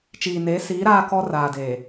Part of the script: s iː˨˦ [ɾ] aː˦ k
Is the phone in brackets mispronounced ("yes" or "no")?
no